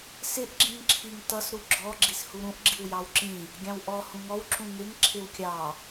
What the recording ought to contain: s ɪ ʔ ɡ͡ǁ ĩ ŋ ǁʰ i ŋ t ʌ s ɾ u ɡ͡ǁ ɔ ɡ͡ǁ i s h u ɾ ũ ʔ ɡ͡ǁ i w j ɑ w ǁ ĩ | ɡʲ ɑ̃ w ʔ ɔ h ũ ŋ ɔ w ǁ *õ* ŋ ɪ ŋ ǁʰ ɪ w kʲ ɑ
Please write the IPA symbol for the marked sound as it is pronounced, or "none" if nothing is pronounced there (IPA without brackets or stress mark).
ũ